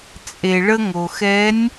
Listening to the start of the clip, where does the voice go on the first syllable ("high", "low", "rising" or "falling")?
low